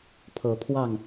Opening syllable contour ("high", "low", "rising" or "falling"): rising